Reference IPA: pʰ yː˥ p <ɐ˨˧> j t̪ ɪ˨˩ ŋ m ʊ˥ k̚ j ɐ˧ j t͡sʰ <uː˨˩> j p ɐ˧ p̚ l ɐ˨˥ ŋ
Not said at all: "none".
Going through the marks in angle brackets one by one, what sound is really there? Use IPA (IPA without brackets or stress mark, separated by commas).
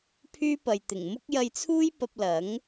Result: ɐ˨, uː˥